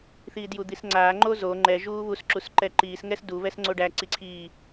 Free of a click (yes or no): no